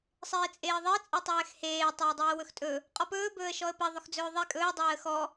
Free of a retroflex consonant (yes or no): yes